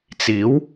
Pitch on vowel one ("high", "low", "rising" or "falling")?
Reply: rising